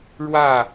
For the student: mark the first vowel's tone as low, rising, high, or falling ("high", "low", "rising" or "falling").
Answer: falling